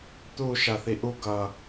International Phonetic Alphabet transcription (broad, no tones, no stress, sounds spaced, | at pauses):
t̪ u ʃ a θ i ʔ u ɡ ʌ